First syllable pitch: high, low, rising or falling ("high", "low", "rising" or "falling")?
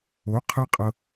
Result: rising